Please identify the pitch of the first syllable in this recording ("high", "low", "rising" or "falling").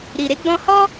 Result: low